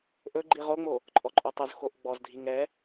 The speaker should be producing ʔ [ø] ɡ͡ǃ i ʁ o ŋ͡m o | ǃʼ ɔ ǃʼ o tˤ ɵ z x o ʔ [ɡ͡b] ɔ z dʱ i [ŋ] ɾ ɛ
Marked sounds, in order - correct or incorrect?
incorrect: ɵ, correct, correct

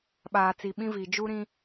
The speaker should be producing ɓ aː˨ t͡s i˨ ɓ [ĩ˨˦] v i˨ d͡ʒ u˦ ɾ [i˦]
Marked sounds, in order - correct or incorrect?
incorrect: ĩ˦, incorrect: ĩ˦

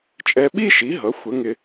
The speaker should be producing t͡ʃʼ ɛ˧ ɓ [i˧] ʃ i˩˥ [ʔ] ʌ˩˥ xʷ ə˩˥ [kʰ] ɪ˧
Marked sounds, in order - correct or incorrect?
incorrect: i˥, incorrect: ɦ, incorrect: ŋ

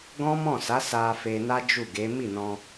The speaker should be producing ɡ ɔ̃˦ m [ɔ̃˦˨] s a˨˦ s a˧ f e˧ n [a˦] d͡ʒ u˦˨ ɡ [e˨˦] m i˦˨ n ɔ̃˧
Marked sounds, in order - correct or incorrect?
correct, correct, correct

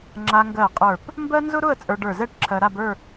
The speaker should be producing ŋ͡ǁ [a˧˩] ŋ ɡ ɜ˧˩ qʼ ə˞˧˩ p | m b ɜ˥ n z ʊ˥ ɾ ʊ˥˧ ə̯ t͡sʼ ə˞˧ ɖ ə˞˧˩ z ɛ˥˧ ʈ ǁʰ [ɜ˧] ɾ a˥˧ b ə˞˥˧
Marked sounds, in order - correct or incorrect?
incorrect: a˧, correct

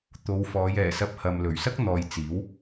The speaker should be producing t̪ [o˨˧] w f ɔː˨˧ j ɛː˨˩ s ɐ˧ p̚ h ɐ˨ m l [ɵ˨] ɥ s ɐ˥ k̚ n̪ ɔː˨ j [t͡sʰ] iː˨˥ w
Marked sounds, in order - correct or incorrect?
correct, incorrect: ɵ˨˩, incorrect: t͡s

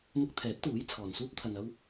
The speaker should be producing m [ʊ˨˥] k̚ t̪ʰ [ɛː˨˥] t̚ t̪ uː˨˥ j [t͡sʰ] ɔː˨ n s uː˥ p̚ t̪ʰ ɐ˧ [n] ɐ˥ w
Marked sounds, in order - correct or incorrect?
incorrect: ʊ˧, correct, correct, correct

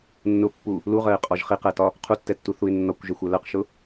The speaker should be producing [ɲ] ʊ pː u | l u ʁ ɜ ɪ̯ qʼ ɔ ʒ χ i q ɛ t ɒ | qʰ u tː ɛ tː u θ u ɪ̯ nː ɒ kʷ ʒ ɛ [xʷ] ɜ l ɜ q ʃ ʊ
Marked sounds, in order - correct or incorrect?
incorrect: nː, correct

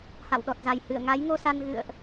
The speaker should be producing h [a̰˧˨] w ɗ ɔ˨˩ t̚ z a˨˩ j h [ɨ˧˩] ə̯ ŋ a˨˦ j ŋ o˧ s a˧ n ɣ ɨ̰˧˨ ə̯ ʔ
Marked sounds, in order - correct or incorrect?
correct, correct

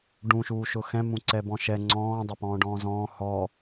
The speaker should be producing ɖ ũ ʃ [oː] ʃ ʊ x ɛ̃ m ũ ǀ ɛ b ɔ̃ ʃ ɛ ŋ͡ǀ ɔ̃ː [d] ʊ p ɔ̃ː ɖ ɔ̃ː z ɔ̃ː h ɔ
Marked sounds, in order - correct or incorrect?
incorrect: uː, incorrect: dˤ

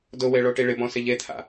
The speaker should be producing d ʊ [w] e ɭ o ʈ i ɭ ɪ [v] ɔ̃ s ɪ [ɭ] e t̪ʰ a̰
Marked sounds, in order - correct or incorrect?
correct, incorrect: b, incorrect: ʎ

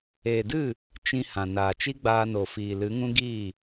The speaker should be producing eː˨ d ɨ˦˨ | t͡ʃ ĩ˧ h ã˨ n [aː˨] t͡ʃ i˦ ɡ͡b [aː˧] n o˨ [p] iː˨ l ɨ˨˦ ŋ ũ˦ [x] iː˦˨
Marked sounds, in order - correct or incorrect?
correct, correct, incorrect: f, incorrect: ɡ

